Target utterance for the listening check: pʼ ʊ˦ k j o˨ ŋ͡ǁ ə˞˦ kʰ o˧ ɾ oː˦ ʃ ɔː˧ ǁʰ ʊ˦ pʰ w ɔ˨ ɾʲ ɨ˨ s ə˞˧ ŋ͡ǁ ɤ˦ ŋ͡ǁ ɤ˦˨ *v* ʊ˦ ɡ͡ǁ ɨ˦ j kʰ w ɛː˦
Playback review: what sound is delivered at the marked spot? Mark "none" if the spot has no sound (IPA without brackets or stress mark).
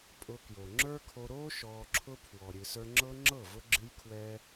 v